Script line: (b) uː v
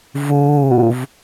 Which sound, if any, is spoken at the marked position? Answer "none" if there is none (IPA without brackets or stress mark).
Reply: v